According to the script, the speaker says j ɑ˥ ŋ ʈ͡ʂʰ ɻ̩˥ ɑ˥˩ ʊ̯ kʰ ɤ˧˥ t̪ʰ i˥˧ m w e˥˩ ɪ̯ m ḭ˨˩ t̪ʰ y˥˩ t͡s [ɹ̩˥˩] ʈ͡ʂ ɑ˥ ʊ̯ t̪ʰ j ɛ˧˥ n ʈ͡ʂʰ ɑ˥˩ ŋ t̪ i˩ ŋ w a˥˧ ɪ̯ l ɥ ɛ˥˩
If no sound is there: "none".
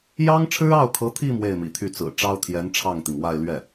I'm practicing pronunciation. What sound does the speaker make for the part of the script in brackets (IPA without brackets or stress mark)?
ɹ̩˨˩